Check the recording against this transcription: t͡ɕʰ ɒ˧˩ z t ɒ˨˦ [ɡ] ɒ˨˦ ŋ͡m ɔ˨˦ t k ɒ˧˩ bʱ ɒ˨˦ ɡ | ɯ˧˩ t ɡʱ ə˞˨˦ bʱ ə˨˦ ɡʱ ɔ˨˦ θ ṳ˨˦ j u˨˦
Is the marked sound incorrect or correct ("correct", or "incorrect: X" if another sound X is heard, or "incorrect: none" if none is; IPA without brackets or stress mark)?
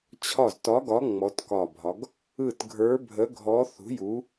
correct